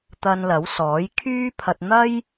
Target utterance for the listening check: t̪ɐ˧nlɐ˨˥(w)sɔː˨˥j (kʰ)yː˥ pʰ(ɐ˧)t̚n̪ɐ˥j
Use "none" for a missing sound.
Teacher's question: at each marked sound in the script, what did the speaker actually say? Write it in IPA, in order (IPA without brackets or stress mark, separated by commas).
w, kʰ, ɐ˧